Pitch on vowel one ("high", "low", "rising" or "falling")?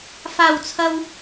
low